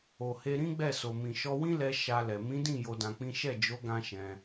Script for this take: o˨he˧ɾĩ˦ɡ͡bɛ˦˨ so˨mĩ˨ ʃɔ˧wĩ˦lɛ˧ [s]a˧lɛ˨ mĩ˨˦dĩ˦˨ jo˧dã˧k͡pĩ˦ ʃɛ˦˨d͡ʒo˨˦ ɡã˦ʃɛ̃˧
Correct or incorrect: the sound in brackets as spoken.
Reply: incorrect: ʃ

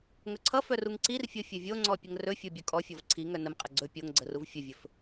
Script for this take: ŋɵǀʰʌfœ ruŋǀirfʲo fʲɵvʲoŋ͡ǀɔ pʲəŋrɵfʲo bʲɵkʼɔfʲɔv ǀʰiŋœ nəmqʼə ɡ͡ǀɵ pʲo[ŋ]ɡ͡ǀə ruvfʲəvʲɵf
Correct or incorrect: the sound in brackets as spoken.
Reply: correct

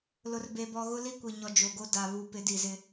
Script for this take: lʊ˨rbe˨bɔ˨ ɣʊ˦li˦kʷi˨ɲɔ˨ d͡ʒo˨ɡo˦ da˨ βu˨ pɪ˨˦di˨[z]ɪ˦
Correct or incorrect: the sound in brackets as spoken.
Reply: correct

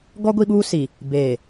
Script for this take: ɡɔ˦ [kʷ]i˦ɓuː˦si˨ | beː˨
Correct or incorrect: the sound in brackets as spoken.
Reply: incorrect: ɡʷ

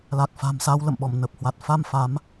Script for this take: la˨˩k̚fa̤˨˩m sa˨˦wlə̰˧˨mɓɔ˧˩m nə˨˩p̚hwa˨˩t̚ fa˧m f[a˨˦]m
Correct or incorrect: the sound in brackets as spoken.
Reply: correct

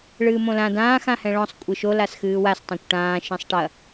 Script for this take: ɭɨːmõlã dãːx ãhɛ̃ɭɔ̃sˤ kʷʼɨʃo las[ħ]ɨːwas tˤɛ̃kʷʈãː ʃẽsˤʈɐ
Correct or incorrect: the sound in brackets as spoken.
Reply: incorrect: x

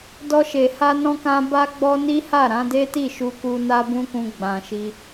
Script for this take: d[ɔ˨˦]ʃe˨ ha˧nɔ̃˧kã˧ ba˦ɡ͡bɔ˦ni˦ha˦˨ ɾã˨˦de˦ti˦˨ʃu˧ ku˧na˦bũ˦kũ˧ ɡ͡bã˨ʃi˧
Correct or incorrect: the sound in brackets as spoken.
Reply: incorrect: ɔ˧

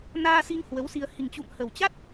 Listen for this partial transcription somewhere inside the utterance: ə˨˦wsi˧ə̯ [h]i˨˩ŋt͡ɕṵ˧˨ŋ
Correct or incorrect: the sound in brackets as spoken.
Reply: correct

